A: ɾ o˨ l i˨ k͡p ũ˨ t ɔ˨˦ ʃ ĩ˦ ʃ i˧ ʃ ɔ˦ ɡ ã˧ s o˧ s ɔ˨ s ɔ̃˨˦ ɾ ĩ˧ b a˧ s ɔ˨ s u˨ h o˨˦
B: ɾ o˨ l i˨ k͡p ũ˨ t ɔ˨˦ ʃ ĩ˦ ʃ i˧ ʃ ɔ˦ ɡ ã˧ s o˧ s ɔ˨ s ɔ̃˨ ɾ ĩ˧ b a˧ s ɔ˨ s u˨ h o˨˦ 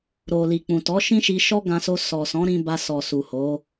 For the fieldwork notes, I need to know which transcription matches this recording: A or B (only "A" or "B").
A